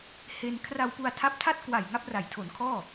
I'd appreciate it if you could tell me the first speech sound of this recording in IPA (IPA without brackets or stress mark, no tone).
h